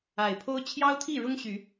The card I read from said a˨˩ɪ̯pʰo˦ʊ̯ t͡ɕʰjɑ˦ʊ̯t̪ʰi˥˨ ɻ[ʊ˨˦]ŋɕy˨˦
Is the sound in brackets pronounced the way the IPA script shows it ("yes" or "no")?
no